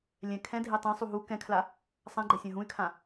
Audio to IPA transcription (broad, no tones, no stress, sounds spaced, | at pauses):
lʲ ɛ̃ kʰ ɛ̃ dʱ e tˤ ẽ sˤ u ɦ u k ɛ̃ kʰ l a | sˤ ã ɡ͡ǃ ɛ sʲ ã ɦ ũ y̯ kʰ ã